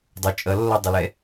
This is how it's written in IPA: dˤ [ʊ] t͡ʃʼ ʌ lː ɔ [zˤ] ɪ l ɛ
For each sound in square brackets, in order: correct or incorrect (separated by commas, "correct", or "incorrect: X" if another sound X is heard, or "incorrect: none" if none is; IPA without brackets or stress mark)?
correct, incorrect: dˤ